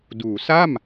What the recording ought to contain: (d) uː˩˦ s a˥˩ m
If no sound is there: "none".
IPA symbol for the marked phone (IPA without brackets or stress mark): d